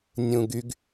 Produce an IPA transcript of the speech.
nʲũɡyɡ

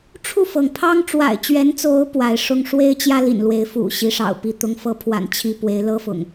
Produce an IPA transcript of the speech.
ʈ͡ʂʰu˥˨fɤ˩ŋpʰɑ˦ŋ ʈ͡ʂwa̰˨˩ɪ̯t͡ɕɥɛ˨˦nt͡so˨˦ʊ̯ pwa˨˦ɪ̯ ʂʊ˦ŋ ʂwe˦ɪ̯ t͡ɕjä˦lḭ˨˩nlwe˨˦ɪ̯ fṵ˨˩ ɕi˨˦ʂɑ̰˨˩ʊ̯pi˥˨ t̪ʊ˨˦ŋfɤ˨˦pʰwa̰˨˩n t͡ɕʰi˥˨ pwe˨˦ɪ̯lɤ˦fʊ̰˨˩ŋ

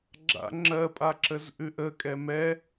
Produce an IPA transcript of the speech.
ɡ͡ǁa̰ ŋ͡ǁɜ pʼaǁəzʔʉʔə kʼɛmɛ

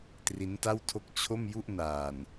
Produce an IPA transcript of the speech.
tri˦˥nta˥˩wtʰo˥˩k̚ t͡ɕʰo˥˩mju˥˩ʔnaː˨˩n

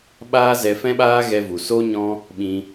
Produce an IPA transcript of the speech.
ɓaː˦zɛ˧fɛ̃˦ɓaː˦ ɣɛ˧vu˨ so˦ɲɔ̃˦ | ɓĩ˧

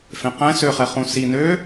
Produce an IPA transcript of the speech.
fẽqɛ̃ søχɛχũ si nø

